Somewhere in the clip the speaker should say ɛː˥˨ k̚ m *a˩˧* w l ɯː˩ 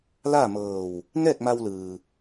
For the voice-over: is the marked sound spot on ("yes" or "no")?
no